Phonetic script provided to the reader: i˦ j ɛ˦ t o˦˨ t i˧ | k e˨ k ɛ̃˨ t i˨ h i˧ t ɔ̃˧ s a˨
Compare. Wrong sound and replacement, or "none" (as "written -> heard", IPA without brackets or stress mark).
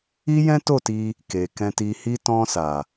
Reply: ɛ˦ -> ɛ̃˦